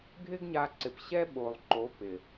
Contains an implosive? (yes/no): yes